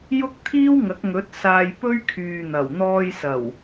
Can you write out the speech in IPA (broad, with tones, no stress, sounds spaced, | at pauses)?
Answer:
j ʊ˥ k̚ t̪ʰ iː˥ w ŋ ɐ˨˥ k̚ ŋ ɵ˨˥ t̚ s aː˧ j p ɵ˥ ɥ kʰ yː˨ n̪ ɐ˨˩ w n̪ ɔː˧ j s ɐ˨˩ w